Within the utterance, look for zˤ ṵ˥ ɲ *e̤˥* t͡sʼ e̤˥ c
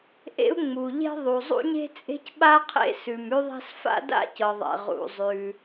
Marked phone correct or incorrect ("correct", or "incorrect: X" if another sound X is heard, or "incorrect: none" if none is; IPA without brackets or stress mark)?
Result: correct